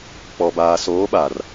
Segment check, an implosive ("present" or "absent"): present